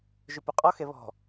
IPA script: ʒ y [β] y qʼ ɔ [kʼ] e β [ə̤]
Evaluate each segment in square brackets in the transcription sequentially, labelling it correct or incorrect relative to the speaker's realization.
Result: incorrect, incorrect, incorrect

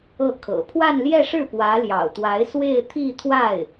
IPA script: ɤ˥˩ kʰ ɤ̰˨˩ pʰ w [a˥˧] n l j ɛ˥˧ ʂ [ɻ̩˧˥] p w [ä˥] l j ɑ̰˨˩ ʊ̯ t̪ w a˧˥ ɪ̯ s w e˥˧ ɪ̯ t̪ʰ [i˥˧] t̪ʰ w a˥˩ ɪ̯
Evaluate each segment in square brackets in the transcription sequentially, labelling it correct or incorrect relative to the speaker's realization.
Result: correct, incorrect, incorrect, correct

